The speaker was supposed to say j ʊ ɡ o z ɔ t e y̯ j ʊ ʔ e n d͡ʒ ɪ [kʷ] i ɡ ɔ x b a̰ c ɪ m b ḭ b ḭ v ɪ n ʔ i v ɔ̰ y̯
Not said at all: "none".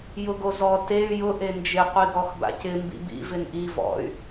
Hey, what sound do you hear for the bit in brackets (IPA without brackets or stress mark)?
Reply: qʷ